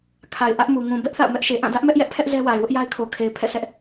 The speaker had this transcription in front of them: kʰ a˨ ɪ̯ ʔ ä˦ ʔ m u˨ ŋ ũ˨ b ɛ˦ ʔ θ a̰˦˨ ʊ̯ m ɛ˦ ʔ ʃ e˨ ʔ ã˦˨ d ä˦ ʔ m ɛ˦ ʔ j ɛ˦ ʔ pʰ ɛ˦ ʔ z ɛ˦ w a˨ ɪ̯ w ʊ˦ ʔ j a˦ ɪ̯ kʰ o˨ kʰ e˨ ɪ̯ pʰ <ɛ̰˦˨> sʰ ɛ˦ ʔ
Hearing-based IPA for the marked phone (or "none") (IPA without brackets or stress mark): ɛ̰˦˨